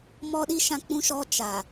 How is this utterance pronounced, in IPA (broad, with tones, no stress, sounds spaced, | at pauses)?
m ɔ˦ ɗ i˦ ʃ ã˦ k͡p ũ˦ ʃ ɔ˦ t͡ʃ a˨